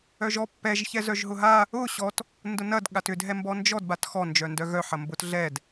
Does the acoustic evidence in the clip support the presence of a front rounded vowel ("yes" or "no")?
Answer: yes